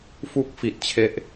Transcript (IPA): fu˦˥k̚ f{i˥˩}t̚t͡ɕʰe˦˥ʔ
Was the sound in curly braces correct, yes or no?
no